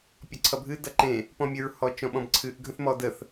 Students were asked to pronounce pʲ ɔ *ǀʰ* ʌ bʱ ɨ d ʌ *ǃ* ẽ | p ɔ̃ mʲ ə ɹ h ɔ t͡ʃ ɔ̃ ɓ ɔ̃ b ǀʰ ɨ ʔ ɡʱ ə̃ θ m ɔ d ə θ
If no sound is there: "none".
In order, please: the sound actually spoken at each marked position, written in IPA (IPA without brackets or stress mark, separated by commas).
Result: ǀʰ, ǃ